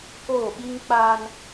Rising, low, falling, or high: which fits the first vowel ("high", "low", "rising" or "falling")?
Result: falling